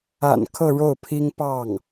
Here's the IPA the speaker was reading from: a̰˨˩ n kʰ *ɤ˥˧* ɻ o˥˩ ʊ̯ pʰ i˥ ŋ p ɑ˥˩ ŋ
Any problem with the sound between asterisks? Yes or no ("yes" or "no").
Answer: no